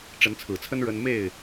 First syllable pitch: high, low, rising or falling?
rising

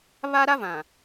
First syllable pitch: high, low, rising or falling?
high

